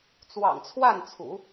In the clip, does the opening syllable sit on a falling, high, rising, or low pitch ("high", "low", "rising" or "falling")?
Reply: low